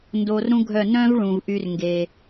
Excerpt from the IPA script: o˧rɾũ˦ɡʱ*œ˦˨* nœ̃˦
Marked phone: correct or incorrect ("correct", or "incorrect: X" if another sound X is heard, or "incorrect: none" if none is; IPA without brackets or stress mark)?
correct